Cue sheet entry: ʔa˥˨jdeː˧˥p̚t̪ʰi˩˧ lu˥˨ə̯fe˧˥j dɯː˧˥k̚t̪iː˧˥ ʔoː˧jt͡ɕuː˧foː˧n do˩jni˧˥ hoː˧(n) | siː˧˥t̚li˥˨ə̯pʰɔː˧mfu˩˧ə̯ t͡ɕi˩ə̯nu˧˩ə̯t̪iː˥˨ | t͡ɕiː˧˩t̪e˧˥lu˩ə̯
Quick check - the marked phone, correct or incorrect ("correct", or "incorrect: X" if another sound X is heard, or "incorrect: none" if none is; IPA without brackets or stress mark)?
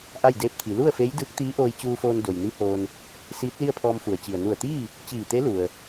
correct